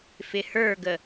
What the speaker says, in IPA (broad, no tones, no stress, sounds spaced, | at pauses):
f ɪ h ə˞ ɡ ə